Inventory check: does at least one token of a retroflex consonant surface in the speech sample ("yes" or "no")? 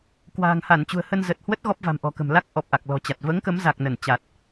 no